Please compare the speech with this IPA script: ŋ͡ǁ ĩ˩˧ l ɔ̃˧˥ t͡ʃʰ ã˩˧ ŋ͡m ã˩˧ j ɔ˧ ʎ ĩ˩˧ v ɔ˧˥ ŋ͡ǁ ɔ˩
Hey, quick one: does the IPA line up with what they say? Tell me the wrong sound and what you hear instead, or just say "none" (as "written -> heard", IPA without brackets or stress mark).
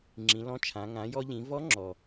ŋ͡m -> ŋ